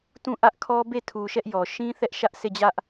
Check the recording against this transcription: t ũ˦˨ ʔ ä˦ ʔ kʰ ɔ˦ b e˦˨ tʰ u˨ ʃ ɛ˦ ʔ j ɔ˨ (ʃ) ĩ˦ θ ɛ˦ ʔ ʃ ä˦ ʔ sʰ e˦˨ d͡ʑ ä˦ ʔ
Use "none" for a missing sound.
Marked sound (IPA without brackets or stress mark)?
ʃ